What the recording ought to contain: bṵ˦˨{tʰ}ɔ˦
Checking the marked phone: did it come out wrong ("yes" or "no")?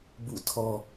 no